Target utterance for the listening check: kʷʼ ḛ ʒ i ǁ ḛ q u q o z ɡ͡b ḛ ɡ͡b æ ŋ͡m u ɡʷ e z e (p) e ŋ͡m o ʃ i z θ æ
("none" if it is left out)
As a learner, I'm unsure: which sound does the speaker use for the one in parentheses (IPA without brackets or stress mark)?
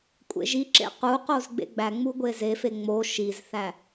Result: f